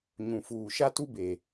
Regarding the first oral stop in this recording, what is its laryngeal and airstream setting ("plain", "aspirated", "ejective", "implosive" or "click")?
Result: plain